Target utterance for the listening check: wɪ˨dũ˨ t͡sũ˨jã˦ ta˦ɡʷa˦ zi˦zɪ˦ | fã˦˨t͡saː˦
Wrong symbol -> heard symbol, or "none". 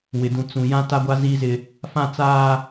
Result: none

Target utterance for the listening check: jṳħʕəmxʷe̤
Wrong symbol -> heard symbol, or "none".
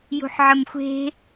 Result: none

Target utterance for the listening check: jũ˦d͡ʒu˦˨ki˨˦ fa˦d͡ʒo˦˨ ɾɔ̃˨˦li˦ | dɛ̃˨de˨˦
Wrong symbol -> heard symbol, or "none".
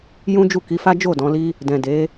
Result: ɾ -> d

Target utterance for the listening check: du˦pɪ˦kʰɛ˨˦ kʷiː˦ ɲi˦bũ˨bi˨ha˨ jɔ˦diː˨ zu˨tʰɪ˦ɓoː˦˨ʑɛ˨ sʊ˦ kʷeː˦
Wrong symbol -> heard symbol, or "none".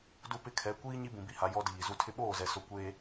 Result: ʑ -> z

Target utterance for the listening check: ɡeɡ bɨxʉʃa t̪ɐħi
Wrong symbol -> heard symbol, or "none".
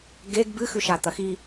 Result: ħ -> x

